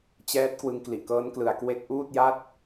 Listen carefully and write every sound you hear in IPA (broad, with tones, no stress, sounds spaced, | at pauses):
t͡ɕ ɛː˦˥ t̚ k w ɯ˧ ŋ k l i˨˩ ʔ k ɤː˦˥ n k l ɯ˩˦ a̯ k w e˦˥ k̚ ʔ uː˥˩ t̚ j a˥˩ t̚